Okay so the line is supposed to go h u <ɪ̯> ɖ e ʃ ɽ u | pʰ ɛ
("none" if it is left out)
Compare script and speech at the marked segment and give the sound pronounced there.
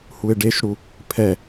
ɪ̯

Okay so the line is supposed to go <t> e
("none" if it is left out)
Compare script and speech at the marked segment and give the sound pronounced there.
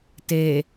t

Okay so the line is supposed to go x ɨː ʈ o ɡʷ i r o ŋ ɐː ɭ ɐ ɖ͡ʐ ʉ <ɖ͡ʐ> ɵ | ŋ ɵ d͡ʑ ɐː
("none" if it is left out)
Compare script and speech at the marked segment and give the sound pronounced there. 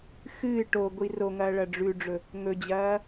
ɖ͡ʐ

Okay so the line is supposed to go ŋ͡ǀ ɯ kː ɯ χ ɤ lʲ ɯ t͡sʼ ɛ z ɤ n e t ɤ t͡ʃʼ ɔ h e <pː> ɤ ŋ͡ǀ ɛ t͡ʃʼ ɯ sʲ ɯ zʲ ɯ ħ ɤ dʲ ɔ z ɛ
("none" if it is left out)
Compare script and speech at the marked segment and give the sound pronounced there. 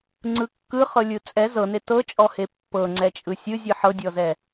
pː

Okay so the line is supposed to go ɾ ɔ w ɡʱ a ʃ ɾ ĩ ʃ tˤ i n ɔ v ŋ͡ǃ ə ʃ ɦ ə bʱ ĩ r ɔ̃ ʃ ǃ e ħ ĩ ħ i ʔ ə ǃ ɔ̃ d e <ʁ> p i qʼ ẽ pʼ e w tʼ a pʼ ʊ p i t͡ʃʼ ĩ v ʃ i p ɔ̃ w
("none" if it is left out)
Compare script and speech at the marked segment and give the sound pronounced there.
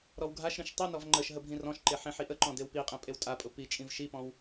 w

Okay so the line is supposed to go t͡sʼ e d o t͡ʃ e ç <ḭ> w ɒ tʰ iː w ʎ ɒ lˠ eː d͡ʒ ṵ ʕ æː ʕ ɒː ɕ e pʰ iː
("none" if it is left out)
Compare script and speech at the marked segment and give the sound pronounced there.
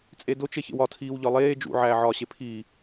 ḛ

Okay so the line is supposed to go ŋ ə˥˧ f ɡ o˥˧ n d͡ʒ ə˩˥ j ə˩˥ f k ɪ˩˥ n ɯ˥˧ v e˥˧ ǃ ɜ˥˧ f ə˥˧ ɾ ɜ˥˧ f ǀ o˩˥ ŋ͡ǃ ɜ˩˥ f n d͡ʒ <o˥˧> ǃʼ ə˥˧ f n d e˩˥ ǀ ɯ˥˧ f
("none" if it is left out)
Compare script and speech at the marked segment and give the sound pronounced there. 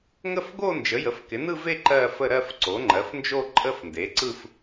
o˥˧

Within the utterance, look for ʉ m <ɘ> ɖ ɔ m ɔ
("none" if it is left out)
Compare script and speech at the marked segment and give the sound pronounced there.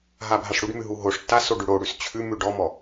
ʉ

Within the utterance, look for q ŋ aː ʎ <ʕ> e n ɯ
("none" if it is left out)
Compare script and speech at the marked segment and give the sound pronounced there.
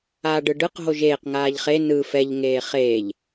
χ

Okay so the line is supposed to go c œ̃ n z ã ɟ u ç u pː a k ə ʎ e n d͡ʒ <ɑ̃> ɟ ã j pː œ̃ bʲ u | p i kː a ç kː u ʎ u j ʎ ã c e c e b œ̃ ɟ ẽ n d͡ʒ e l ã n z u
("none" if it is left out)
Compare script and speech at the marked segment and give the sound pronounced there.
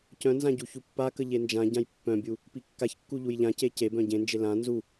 ã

